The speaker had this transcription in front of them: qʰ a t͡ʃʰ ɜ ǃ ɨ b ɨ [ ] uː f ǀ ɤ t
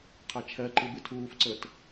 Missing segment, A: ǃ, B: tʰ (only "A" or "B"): B